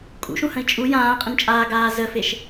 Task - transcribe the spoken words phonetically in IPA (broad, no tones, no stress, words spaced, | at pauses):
kʼṵʃũhə̃i̯ t͡ʃʼu jãːqʼə̃nt͡ʃʼaː ɡaːzəfeʃ